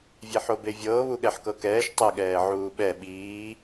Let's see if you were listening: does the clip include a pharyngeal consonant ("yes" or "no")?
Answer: yes